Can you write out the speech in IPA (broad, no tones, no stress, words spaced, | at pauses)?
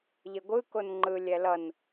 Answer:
ʎeɡʷɯ konŋ͡ǃɯ lʲɛlʌn